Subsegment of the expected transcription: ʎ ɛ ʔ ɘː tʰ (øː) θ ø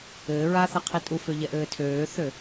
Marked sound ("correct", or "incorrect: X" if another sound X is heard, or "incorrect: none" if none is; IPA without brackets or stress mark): correct